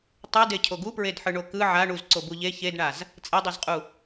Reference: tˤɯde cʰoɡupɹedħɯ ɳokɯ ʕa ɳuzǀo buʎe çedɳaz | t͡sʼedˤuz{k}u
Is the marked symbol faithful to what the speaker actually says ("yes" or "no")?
no